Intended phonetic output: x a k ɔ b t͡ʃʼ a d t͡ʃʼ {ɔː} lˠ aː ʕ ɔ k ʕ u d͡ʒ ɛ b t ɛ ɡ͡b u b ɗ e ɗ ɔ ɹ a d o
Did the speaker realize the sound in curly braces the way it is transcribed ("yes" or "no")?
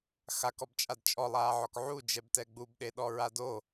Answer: no